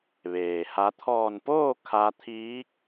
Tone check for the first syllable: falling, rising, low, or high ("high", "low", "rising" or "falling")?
low